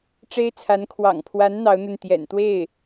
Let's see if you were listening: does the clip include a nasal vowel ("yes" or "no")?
no